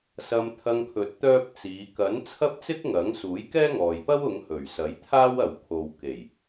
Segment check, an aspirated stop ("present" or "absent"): present